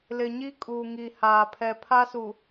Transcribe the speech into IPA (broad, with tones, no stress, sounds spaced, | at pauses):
l ɪ˨ ɲ i˦ kʼ uː˨ ŋ i˨ h aː˨ pʰ ɛ˨ pʰ a˦ s u˨